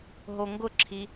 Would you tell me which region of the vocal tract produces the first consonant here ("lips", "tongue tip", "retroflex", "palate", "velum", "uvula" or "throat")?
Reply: throat